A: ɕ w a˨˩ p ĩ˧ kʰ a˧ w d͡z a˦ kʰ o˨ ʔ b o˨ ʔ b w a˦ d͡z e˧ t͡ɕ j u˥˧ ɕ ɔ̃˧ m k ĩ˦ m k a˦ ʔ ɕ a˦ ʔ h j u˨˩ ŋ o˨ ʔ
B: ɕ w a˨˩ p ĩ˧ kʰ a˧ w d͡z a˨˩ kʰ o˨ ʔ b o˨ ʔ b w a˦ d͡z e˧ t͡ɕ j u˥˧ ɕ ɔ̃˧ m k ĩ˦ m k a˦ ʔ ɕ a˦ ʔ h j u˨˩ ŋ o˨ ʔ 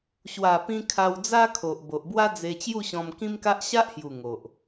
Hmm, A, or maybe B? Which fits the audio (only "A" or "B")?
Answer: A